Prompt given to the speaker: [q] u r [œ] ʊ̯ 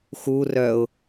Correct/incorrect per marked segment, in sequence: incorrect: x, correct

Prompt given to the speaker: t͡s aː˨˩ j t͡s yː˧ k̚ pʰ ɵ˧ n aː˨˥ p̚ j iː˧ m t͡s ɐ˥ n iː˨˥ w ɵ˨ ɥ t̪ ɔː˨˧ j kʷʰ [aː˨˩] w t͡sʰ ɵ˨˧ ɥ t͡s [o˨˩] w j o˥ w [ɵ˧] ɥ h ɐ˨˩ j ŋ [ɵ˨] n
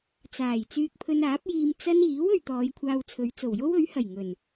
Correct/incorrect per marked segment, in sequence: incorrect: aː˧, correct, incorrect: ɵ˨˥, incorrect: ɵ˨˩

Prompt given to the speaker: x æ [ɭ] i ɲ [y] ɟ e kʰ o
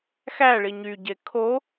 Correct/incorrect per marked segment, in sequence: correct, correct

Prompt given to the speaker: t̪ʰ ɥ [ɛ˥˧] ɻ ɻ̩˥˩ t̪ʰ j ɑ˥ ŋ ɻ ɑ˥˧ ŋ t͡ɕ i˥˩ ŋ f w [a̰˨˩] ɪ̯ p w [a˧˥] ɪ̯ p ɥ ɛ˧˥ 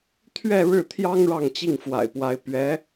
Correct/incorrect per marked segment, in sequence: correct, correct, correct

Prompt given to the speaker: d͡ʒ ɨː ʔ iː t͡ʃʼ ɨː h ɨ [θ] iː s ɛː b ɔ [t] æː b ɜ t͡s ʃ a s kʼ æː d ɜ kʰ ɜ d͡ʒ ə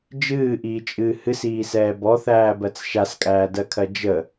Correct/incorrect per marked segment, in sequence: incorrect: s, incorrect: θ

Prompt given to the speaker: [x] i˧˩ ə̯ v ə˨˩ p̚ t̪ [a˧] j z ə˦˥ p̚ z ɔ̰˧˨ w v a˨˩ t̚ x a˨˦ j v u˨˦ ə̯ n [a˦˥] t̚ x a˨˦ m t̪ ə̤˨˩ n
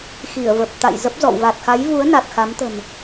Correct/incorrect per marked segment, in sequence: correct, incorrect: a̰˧˨, incorrect: a˨˩

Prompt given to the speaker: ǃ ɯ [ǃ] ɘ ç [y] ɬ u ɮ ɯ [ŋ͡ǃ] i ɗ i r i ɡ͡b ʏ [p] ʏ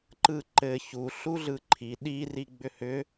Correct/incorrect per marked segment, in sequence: correct, incorrect: u, incorrect: ǃʰ, incorrect: h

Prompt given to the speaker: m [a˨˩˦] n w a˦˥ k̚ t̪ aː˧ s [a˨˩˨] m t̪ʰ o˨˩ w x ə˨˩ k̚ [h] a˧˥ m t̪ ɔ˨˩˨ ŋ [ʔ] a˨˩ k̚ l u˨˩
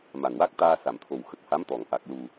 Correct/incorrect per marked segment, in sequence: incorrect: a˨˩, correct, correct, correct

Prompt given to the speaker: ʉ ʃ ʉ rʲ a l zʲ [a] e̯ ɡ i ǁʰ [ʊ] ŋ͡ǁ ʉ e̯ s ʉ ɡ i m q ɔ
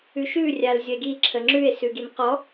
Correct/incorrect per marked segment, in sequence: incorrect: ə, incorrect: ə

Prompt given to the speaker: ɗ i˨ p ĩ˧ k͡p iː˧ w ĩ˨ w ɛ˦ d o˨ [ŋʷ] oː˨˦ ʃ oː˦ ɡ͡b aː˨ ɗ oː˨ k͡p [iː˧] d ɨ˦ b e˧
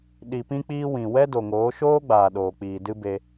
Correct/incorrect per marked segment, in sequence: incorrect: ŋ, incorrect: iː˨

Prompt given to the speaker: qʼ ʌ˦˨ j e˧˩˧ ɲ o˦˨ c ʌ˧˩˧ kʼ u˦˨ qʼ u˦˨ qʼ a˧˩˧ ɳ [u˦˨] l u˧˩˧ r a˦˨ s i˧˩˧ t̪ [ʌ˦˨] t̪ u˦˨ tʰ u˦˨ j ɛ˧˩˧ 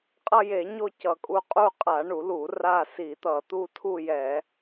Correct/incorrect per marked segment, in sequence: incorrect: u˧˩˧, incorrect: ʌ˧˩˧

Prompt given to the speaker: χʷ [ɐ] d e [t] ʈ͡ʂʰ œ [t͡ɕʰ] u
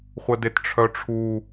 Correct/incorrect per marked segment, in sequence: incorrect: ə, correct, incorrect: ʈ͡ʂʰ

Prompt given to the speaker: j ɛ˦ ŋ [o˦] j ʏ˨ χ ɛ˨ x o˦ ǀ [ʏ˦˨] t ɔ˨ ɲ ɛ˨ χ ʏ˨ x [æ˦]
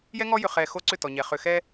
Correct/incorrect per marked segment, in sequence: incorrect: ɔ˦, correct, incorrect: ɛ˦

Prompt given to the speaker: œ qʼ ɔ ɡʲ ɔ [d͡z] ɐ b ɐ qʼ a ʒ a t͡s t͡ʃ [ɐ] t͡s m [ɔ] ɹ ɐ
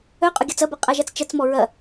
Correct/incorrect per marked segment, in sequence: incorrect: t͡s, correct, correct

